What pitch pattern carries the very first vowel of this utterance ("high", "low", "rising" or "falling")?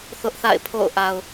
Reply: high